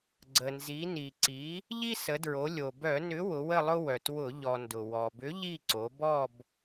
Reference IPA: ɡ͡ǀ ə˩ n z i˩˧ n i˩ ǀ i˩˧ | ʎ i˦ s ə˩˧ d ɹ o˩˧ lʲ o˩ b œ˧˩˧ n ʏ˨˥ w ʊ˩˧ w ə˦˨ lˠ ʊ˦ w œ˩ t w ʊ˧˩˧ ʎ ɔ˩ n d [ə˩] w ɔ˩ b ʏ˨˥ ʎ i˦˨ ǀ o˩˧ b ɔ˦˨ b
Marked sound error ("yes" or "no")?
yes